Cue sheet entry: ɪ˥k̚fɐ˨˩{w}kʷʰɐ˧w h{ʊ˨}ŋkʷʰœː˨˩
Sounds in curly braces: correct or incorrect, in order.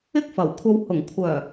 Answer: correct, incorrect

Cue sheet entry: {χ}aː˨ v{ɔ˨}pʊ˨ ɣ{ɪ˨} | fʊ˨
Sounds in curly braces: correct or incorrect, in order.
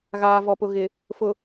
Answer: incorrect, correct, correct

